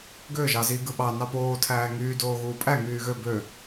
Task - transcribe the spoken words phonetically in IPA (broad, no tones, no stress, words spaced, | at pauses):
ɡø ʒɑzi ɡɯɓɑ nɑpoː tʰæːŋyː doːɣuːpʼæ ŋyːɣø bø